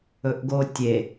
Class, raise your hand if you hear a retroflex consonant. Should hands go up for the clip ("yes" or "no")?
no